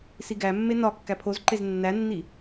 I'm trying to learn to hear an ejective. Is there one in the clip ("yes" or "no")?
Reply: no